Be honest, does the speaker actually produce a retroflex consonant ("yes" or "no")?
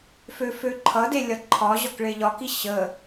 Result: yes